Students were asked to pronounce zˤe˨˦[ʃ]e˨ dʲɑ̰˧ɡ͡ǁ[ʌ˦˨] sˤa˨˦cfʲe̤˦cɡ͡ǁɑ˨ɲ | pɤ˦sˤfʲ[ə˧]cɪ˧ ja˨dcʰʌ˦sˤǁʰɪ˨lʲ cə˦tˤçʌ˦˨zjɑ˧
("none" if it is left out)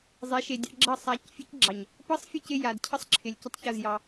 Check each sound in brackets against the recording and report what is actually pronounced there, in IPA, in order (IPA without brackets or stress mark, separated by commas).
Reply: ʃ, ʌ˦˨, ə˦˨